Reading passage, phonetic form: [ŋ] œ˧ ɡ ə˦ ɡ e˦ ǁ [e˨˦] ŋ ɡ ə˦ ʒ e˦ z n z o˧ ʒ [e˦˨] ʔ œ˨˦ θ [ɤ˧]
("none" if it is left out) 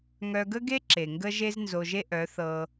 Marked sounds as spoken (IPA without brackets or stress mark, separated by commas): ŋ, e˨, e˦, ɤ˧